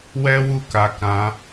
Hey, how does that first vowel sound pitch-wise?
high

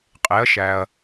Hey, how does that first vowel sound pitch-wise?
rising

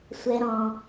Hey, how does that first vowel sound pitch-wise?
high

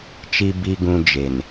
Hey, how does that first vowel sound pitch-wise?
low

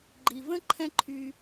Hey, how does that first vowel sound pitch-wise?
low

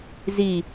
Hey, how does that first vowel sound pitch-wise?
low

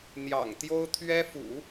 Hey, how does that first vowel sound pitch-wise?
low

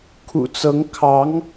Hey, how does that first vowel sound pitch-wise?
low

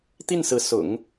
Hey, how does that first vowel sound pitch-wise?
falling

